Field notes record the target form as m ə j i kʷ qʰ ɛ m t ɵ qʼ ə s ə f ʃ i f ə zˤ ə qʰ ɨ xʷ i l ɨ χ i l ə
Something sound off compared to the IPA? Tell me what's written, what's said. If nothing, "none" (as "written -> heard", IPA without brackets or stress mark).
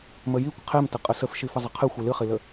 ɵ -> ə